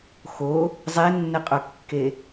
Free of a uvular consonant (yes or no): no